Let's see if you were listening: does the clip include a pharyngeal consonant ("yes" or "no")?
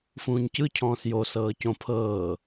no